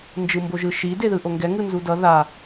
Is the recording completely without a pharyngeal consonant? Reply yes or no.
yes